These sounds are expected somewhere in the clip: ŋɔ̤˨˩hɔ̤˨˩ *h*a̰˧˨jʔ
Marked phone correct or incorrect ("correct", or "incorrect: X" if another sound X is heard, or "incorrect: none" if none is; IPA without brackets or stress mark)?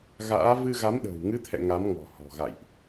incorrect: ɣ